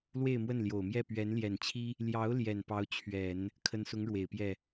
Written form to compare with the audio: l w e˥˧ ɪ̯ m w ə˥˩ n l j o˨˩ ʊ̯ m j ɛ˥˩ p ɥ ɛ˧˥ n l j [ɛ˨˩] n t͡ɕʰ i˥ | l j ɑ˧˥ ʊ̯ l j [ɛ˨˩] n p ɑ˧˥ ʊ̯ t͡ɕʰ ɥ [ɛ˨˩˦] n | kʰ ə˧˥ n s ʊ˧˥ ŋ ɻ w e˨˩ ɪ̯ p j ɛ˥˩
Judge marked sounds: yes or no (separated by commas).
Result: yes, yes, yes